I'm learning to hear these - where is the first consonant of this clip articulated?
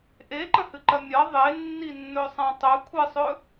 throat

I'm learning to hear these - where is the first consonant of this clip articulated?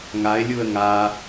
velum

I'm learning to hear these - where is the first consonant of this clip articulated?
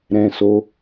tongue tip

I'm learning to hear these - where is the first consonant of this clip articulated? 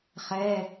uvula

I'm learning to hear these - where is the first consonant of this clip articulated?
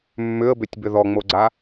lips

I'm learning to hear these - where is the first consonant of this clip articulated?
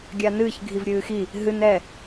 velum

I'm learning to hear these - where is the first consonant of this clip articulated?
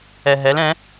throat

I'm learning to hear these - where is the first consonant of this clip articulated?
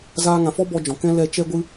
tongue tip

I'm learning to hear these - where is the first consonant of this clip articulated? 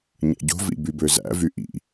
palate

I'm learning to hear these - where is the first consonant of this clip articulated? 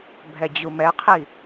lips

